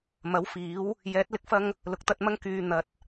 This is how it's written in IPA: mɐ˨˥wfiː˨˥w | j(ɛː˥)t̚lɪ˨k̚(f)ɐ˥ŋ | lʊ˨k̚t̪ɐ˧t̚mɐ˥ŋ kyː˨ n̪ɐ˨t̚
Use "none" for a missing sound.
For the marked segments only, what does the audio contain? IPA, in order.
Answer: ɛː˨˥, f

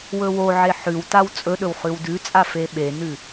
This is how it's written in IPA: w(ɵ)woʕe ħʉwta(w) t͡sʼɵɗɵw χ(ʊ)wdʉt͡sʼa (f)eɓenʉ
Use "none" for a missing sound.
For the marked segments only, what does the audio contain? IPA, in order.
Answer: ɵ, w, ʉ, f

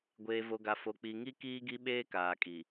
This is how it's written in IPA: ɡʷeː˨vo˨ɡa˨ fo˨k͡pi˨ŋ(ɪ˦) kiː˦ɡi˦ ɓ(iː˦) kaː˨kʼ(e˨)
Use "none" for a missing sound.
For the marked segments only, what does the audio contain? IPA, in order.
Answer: i˦, eː˦, i˨

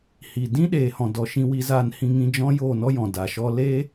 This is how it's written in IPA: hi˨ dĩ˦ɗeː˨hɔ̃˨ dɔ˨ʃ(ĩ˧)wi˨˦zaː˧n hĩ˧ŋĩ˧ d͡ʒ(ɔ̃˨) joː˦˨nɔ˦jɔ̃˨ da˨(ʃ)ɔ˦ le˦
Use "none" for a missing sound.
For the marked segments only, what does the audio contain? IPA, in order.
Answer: ĩ˧, ɔ̃˦, ʃ

